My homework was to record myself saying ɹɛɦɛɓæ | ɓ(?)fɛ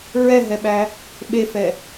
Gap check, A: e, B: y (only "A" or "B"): A